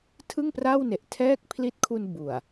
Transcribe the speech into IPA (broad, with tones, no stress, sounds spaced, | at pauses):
tʰ ɯ˥˩ ŋ p r a˥˩ w n e˨˩ ʔ tʰ ɛː˥˩ k̚ pʰ l i˦˥ t̚ kʰ u˧ n b u˨˩ a̯